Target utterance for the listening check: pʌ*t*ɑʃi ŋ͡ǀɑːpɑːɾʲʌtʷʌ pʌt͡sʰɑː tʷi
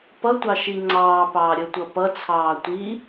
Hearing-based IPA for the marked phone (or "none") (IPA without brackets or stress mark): tʷ